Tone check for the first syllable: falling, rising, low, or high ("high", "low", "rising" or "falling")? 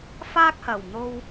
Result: high